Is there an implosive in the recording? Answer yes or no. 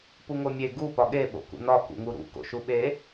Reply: yes